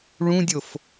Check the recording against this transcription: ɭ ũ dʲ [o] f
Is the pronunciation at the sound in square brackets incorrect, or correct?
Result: correct